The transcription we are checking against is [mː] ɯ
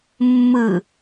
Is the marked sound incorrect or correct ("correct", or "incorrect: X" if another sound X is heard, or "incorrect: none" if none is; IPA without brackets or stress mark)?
correct